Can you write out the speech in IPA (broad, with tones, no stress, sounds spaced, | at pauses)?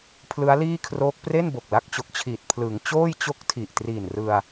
pʰ l ɯ˦˥ a̯ l iː˥˩ kʰ r oː˦˥ k̚ p r e˥˩ n b o˨˩ k̚ l a˦˥ k̚ t͡ɕ o˨˩ k̚ t͡ɕʰ iː˨˩ t̚ pʰ l ɯ˩˦ ŋ t͡ɕ oː˥˩ j t͡ɕ o˥˩ k̚ tʰ i˨˩ ʔ t r iː˨˩ n r ɯ˧ a̯